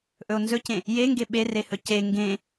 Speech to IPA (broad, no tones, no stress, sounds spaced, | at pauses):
ʔ ɵ o̯ n z ɵ c ẽ | j e ŋ ɡ e ɓ e r e h ɵ c e ŋ ɡ ẽ